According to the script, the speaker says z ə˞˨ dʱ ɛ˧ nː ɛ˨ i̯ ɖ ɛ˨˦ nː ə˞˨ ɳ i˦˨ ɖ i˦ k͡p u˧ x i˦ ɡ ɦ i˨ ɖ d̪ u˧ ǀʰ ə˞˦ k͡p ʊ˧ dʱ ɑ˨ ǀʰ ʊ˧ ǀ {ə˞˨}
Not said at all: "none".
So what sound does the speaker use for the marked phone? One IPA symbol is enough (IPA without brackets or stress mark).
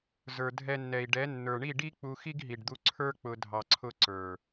ə˞˨